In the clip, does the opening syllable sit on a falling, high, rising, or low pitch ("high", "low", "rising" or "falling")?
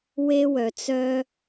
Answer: high